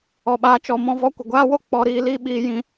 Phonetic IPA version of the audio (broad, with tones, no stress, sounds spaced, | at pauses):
ɔ˨ ɓ aː˧ t͡ʃ ɔ˧ m ɔ̃˦ v ɔ˧ kʷ ə˨ ɡʷ aː˦ w o˦ k͡p ɔ˧ ɾ iː˧ l iː˦ ɓ iː˧ j ĩ˧